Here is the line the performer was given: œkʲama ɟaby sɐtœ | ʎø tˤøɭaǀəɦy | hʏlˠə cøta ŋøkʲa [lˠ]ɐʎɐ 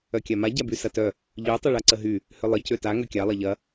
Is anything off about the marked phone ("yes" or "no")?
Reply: no